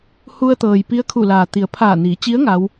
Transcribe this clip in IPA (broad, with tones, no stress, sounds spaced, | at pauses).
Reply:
h u˧ ə̯ t̪ ɤː˩ j p i˧˥ ə̯ kʰ u˧˩ l aː˩ t̪ i˩˧ ə̯ pʰ aː˧˩ n iː˩˧ t͡ɕ i˧˥ ə̯ ŋ a˧˥ w